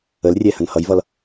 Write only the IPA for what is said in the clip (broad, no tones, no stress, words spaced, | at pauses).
əlrʲɛ hə̃nhʌjvʌl